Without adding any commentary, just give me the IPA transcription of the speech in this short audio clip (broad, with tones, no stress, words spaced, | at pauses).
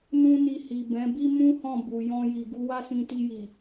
nũ˦ni˧ hi˨ bɛ̃˨˦bi˦mũ˦hɔ̃˦˨ bu˨ jɔ̃˧ji˨ ɡu˧wa˦sĩ˧ti˧ ji˨